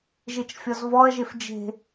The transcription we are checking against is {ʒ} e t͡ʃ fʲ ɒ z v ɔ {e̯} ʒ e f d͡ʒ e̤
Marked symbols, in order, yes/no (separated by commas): yes, no